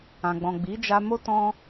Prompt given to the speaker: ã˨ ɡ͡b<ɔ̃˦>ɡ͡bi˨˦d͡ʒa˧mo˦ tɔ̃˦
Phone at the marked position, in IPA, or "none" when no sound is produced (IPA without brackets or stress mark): ɔ̃˨